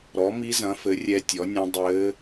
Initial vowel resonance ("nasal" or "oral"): oral